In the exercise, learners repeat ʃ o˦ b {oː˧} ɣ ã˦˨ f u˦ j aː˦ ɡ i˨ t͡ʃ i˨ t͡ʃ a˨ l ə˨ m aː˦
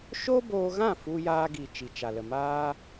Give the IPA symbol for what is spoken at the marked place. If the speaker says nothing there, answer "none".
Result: oː˧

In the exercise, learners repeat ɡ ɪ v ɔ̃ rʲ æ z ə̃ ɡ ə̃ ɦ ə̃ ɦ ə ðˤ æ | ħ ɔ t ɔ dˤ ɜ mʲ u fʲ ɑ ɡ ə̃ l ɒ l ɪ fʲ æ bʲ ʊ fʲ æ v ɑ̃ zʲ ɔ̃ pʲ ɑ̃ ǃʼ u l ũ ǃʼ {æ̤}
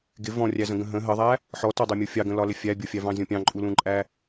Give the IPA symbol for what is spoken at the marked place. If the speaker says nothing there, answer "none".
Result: æ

